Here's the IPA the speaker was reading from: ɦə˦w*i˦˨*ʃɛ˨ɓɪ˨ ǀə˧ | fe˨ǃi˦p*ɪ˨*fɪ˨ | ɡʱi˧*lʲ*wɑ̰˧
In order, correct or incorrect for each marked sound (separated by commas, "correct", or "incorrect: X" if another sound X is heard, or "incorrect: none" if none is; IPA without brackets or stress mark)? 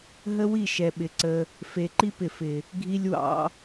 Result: correct, correct, correct